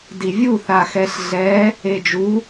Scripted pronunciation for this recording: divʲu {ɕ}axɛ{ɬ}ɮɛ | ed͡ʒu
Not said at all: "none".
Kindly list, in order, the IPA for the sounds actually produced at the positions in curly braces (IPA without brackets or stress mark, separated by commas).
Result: θ, ɬ